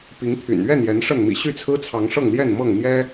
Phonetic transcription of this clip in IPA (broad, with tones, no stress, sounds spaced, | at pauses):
p i˨˦ ŋ t̪ʰ y̰˨˩ n ɥ ɛ˥˨ n j ɛ˨˦ n ʂ ə˥˨ n m ḭ˨˩ ɕ y˥˨ t͡sʰ ɹ̩˦ t͡sʰ ɑ˨˦ ŋ ʂ ɤ˥˨ ŋ l j ɛ˥˨ n m ɤ˥˨ ŋ n̪ j ɛ˦